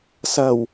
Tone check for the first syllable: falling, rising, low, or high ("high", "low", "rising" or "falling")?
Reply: low